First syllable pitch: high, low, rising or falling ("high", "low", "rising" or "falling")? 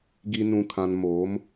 low